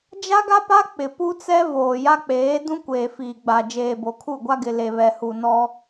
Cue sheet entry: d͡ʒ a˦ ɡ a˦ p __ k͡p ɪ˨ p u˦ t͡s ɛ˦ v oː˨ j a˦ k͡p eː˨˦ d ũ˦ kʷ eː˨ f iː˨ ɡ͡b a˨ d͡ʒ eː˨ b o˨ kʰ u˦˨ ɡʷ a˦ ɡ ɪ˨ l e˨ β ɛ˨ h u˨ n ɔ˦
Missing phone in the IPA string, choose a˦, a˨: a˦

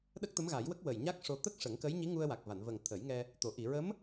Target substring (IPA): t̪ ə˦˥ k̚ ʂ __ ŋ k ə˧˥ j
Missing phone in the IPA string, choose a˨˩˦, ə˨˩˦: ə˨˩˦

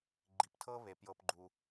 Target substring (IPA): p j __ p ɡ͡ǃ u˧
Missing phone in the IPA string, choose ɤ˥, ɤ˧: ɤ˧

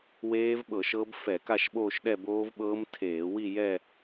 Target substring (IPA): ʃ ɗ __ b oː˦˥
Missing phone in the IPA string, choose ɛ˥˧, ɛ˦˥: ɛ˥˧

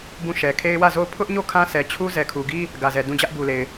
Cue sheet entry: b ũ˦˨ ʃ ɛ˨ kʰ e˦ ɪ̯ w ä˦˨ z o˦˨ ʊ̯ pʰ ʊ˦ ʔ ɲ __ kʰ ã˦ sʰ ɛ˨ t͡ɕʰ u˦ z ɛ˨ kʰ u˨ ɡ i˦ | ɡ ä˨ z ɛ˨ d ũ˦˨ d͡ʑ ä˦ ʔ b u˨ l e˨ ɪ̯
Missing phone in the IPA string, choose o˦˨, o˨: o˦˨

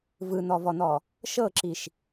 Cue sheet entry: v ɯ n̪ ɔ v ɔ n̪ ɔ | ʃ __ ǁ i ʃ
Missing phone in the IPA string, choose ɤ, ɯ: ɤ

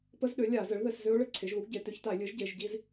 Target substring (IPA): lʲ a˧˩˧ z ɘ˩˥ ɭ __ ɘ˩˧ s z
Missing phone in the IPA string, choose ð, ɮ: ð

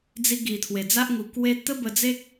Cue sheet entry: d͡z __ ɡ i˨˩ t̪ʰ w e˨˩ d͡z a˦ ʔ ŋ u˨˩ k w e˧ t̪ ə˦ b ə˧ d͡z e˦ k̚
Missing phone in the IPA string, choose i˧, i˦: i˧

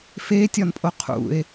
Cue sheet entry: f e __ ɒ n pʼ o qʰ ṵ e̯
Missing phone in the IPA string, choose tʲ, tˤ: tʲ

